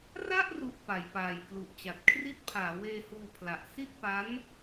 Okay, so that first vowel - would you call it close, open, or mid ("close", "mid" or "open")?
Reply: open